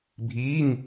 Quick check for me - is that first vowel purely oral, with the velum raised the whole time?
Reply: yes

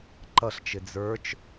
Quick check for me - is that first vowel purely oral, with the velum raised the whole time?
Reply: yes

